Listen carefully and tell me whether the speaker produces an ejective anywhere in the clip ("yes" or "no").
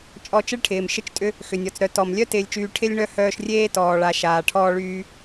yes